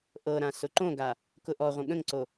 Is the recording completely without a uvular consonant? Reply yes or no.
no